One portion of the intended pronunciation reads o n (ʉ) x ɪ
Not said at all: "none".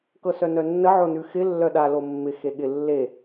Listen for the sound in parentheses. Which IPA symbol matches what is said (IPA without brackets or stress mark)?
ʉ